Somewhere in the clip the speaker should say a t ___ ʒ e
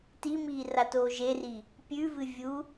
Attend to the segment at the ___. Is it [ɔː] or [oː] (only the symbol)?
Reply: oː